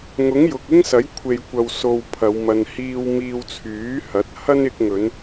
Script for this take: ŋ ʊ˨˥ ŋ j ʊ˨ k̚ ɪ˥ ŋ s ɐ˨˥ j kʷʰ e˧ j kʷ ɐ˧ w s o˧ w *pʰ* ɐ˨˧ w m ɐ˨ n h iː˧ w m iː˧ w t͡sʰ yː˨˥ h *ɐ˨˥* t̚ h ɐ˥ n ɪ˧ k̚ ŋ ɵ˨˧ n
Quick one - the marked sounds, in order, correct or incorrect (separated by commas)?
correct, correct